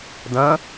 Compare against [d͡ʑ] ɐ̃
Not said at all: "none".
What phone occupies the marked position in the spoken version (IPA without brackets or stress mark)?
d